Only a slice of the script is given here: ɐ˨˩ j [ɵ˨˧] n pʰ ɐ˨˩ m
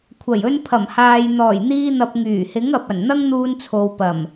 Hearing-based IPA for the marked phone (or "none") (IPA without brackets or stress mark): ɵ˧